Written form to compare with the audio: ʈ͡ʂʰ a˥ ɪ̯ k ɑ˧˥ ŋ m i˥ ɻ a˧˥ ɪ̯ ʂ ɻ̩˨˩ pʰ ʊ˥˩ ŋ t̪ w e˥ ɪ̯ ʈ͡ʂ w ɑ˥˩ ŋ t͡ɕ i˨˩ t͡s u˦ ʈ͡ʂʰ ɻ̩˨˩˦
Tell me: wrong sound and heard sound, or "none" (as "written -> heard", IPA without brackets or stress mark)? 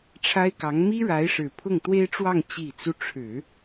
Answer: none